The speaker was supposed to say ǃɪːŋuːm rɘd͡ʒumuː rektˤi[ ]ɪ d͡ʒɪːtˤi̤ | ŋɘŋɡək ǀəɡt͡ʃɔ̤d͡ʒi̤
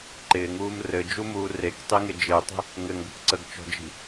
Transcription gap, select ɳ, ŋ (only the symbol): ŋ